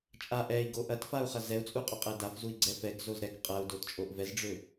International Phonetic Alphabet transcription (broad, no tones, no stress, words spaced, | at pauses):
t͡ʃʼa ʔɛi̯ɡo ʔɐtfau̯χɐ zɛu̯t͡sʼuqʼoqʼɛ dafzui̯ɡ͡ǀɛ fɛɡzoz ɾɛk qʼɐu̯dott͡ʃʼoʔ vɛzɖ͡ʐø